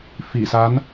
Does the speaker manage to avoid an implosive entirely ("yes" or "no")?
yes